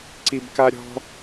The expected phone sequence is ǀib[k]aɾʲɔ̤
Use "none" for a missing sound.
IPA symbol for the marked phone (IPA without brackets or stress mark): k